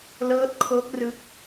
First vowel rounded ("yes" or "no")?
no